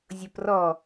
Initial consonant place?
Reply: alveolar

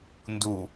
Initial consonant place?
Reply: alveolar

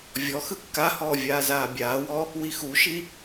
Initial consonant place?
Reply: labial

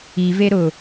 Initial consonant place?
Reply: labial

